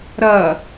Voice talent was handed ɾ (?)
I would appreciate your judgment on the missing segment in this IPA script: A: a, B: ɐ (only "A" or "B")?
B